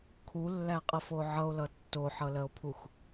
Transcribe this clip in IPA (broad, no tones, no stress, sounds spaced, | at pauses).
kʰ u lː æ qʼ ə f o ʕ ʌ o̯ l ʌ tː o ħ ʌ l ɜ o̯ pʰ u x